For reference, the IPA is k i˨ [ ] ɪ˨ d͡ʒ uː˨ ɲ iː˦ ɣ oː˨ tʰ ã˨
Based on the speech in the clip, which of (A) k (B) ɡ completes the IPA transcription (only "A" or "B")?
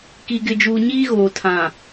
B